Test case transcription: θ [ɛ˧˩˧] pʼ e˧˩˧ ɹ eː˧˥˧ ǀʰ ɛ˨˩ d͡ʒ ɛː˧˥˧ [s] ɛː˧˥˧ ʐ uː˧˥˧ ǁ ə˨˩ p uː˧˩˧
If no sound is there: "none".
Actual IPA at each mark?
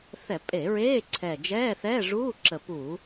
ɛ˧˩˧, θ

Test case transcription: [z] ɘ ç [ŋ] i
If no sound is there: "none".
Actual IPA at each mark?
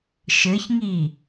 ʃ, ŋ

